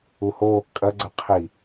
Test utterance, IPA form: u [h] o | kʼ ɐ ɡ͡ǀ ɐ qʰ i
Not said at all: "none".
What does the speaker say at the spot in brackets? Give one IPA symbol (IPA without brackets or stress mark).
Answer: h